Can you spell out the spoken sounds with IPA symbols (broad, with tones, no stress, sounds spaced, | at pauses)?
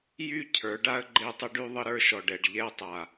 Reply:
j y˦˨ cʰ ə˞˨˦ ɖ a˦ ə̯ ɡ͡ǃ e˦ tˤ ə˦ ɖ y˦ ðˤ ə˦ ɾ ə˞˦ ʃ ɔ˨ ɖ ɛ˨ ɖ ʎ ɛ˦˨ tˤ a˨